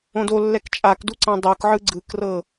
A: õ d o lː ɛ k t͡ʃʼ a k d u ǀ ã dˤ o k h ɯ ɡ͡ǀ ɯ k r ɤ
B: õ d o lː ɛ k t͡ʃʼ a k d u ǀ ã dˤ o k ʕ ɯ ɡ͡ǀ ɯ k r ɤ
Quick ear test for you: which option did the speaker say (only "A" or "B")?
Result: B